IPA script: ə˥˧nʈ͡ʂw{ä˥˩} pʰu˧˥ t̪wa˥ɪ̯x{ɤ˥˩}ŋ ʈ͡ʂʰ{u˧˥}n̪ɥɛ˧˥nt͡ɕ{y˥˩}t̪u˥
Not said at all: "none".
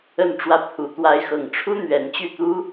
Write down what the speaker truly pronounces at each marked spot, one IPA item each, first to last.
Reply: ä˥˩, ɤ˥˩, u˥, y˥˩

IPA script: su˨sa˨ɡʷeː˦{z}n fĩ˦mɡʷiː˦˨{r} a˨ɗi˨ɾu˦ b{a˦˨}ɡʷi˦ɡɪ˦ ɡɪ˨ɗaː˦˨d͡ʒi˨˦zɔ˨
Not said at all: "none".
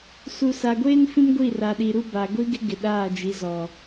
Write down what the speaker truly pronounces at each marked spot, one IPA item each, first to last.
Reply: none, r, a˨

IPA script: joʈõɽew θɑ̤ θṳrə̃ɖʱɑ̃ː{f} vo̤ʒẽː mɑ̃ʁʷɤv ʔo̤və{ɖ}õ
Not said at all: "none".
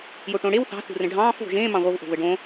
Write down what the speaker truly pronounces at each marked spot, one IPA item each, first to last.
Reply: f, ɖ

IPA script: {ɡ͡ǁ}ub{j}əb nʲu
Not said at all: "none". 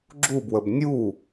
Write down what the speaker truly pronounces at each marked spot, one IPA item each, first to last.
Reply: ɡ͡ǁ, w

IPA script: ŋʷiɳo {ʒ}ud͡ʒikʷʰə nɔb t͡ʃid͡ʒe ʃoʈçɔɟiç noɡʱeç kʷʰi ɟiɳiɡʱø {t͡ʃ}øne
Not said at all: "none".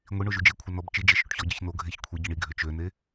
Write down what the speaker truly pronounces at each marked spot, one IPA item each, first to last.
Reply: ʒ, t͡ʃ

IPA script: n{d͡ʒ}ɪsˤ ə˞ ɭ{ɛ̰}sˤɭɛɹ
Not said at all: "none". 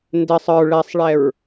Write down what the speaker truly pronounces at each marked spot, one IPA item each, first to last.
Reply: d, ɛ

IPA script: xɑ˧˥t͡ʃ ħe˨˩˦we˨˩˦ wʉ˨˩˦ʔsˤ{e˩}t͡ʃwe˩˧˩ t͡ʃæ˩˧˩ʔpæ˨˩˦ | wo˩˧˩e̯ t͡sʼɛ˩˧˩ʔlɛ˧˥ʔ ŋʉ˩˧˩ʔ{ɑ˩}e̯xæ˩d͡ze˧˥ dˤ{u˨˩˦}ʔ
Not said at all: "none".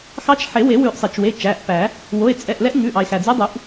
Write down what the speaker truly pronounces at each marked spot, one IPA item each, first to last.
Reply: e˩, ɑ˩, u˨˩˦

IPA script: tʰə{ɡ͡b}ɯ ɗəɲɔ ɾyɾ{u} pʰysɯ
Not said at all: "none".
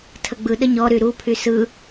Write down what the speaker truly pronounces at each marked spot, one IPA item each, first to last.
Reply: ɡ͡b, u

